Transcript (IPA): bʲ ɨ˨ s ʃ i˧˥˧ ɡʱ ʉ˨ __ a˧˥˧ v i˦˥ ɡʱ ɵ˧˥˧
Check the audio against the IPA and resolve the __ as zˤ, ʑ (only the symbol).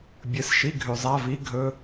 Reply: zˤ